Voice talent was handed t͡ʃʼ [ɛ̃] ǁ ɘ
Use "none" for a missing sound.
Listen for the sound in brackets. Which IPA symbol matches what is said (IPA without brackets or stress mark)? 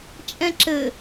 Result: ɛ̃